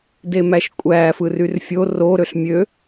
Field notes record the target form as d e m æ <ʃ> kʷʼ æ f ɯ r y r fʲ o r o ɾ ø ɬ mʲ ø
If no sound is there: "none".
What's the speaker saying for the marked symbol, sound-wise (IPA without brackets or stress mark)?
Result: ʃ